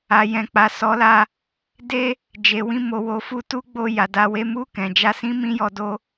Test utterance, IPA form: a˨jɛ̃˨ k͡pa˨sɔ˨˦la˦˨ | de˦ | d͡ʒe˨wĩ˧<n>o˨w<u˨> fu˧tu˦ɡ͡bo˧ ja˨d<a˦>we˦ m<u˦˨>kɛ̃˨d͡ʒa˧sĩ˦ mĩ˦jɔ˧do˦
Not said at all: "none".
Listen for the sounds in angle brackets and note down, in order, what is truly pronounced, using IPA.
m, o˨, a˧, u˦˨

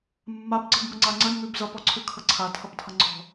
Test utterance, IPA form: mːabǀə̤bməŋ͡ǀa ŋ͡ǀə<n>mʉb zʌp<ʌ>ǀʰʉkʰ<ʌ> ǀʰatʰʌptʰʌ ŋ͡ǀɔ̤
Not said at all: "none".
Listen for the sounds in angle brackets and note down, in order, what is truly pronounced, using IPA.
n, ɔ, ʌ

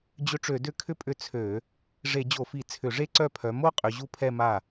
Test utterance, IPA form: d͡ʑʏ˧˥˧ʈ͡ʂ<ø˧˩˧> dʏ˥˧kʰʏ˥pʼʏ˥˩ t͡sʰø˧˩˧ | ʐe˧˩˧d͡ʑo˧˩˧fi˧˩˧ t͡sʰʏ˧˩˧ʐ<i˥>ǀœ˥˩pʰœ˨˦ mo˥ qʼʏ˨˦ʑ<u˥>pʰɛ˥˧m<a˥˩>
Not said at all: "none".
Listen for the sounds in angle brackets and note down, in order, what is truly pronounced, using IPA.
ø˧˩˧, e˥, u˥, a˥˩

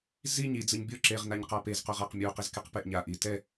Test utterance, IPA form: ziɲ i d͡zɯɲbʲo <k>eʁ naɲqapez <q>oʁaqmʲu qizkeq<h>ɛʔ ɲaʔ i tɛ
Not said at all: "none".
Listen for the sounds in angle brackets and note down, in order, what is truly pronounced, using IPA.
ǁ, q, p

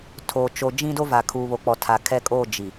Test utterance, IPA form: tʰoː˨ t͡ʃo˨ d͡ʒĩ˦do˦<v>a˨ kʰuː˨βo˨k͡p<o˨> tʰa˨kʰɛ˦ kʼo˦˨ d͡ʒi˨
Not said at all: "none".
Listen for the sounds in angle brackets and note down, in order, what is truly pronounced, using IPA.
v, ɔ˨

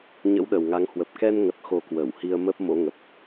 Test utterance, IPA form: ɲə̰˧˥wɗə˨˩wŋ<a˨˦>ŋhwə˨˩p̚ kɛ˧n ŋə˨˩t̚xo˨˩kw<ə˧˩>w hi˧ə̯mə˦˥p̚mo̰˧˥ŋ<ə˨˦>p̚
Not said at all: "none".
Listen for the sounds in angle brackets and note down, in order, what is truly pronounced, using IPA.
a˨˦, ə˧˩, ə˨˩

